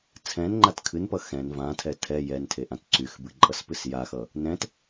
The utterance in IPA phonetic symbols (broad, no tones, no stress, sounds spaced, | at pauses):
t͡sʰ ɛ̃ n ŋ͡ǃ a t kʰ ɨ n p ʌ x ɛ̃ n v ã tʰ ɛ tʰ ɛ j ɛ n tʰ e ʔ ã t ǀ y x b ɨ ǃʼ ʌ s p ɨ s j a x ʌ | n ɛ̃ t